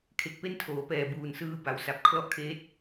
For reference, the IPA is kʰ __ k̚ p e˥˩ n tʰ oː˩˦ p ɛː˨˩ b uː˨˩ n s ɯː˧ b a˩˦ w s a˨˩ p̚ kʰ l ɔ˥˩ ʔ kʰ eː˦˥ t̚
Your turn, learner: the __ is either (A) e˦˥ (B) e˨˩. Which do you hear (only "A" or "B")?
B